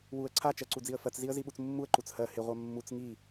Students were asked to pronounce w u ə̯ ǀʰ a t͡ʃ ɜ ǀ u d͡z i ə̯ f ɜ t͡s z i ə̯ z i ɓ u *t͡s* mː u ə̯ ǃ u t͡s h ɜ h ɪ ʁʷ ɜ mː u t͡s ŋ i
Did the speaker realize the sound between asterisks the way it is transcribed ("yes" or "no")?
yes